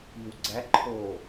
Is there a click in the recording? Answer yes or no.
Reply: yes